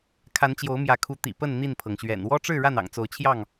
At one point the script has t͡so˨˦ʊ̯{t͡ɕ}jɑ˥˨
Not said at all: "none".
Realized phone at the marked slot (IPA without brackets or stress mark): t͡ɕʰ